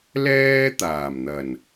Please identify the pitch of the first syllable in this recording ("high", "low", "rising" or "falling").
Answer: high